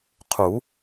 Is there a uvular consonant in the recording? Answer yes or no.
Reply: yes